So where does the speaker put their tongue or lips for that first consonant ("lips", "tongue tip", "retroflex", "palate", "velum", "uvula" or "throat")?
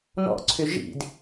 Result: tongue tip